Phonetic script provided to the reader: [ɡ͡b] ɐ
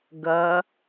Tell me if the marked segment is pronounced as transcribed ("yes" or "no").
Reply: no